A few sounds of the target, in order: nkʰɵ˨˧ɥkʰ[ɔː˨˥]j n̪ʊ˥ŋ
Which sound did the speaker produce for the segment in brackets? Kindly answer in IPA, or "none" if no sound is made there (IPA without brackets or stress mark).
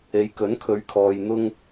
ɔː˨